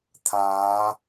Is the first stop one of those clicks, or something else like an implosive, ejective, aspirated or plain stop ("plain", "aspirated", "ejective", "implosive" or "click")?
aspirated